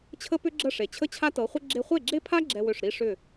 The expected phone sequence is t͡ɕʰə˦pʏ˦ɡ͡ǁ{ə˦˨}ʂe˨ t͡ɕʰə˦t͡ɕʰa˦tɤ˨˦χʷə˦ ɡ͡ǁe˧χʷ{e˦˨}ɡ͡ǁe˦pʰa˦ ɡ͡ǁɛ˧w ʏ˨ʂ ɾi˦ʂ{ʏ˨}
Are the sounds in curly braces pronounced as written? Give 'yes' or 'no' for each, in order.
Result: yes, yes, no

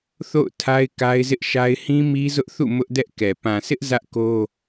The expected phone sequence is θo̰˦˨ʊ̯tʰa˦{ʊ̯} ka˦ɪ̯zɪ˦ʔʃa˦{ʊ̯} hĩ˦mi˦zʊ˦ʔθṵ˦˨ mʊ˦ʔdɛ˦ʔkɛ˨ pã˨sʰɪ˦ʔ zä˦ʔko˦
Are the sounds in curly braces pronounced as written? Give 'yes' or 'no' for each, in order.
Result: no, no

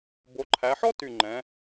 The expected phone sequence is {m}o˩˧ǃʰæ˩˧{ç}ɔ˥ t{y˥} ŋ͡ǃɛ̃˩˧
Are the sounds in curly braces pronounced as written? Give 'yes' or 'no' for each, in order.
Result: no, no, no

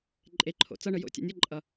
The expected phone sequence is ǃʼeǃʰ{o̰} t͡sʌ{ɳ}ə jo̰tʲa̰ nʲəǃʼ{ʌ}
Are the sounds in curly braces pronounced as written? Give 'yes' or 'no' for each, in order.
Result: yes, yes, yes

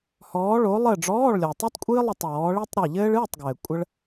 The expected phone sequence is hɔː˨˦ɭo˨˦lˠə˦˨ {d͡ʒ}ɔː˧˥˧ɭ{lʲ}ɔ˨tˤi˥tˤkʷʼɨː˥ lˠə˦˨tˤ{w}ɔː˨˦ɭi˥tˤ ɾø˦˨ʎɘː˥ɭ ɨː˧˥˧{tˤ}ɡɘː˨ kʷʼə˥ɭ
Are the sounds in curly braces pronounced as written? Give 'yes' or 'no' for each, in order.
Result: no, yes, yes, yes

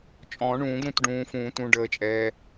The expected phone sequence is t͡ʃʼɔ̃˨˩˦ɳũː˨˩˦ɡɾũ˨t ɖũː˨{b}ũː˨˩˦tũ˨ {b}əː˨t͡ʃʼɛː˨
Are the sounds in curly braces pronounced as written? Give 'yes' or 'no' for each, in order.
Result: no, no

